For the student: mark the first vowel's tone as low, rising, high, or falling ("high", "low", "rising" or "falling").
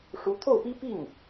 rising